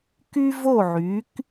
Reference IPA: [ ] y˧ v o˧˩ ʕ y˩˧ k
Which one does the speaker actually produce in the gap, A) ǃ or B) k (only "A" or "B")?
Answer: B